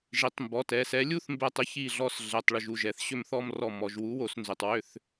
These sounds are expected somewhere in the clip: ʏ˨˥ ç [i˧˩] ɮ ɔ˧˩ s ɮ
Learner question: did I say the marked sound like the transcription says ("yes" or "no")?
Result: yes